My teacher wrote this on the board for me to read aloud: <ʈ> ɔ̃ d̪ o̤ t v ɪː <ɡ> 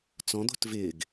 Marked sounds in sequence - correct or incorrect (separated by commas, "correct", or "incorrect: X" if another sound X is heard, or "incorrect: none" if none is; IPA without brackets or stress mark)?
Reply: incorrect: t͡s, correct